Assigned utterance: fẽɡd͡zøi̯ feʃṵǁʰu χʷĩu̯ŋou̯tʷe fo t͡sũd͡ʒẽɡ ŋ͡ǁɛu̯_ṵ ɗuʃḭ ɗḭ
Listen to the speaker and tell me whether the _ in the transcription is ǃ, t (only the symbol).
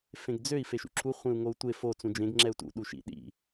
t